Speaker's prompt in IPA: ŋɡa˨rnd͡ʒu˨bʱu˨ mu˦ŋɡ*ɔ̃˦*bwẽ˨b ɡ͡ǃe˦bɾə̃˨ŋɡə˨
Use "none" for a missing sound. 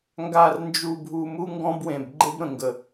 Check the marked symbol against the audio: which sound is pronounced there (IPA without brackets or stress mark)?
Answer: ɔ̃˦